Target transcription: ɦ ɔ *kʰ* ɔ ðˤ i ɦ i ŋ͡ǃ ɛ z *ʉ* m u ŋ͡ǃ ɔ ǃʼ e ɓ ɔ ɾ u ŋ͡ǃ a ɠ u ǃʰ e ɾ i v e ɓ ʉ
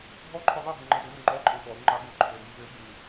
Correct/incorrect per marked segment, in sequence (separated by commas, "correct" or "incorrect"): incorrect, incorrect